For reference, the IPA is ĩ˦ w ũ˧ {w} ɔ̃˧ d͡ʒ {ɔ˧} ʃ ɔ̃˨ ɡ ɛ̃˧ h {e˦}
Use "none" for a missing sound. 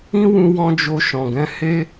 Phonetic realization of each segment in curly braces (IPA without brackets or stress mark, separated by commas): w, o˧, e˦